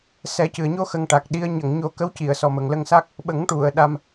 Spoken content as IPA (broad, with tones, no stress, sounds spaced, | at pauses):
s ɛ˨˩˦ c ɨ˨˩ ə̯ ɲ o˧ x ə˧ ŋ ʈ a˨˩ k̚ ɗ i˧˥ ə̯ ɲ ə˨˩˨ ŋ ɲ o˨˩˦ k ə˧˥ w c i˨˩˨ ə̯ s ɔ˨˩ m ə˨˩ ŋ l ə˧ ŋ s a˦˥ k̚ | ɓ ə˨˩˦ ŋ ʈ u˨˩˨ ə̯ ɗ a˧ m